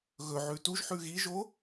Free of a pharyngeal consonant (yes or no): no